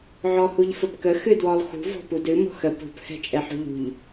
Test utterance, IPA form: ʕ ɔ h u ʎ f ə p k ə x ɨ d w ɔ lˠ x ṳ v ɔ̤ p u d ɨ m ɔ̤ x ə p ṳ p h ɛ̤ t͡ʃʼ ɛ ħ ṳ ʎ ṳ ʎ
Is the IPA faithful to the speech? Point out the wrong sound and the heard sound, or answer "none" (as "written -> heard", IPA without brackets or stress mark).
none